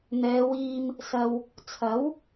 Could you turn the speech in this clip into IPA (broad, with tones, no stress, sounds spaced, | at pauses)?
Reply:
n̪ ɛː˨˧ w iː˧ m | s ɐ˨ w | t͡sʰ ɐ˨˥ w